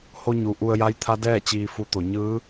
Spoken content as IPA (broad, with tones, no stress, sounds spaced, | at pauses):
h o˧ ɲ u˩ ʔ u˧ ə̯ j a˧˥ j t̪ʰ a˧˥ d ɛː˥˨ t͡ɕ iː˧ f u˧˥ t̪ o˩˧ ɲ ɯː˧˥